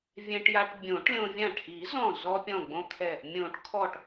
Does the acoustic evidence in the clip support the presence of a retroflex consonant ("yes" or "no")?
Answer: yes